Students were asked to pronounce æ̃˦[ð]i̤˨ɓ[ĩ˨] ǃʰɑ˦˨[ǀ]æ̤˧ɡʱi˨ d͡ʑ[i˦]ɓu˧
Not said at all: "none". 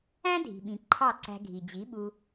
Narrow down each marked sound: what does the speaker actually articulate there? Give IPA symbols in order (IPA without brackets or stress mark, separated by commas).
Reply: dʱ, ĩ˨, ǀ, i˨˦